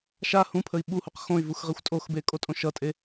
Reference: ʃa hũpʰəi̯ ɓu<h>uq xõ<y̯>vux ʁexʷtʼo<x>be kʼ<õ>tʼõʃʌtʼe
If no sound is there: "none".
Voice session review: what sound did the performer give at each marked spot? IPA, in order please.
h, y̯, x, o

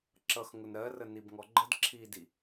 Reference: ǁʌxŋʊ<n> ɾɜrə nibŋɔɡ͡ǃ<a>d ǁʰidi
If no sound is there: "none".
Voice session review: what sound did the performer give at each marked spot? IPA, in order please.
n, ə

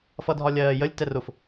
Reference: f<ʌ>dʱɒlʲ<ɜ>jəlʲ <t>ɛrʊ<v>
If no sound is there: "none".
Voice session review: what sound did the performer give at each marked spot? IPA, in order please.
ʌ, ɜː, t, f

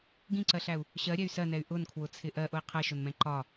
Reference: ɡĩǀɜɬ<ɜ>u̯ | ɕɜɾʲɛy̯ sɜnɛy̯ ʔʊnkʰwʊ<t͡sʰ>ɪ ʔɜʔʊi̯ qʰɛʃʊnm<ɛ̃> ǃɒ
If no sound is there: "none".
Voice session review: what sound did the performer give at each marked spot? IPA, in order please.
æ, t͡sʰ, ɛ̃

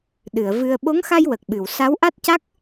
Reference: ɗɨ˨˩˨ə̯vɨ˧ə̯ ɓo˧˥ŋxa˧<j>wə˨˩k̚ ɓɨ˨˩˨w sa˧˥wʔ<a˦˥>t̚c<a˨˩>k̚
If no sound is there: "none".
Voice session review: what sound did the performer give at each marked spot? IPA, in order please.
j, a˦˥, a˦˥

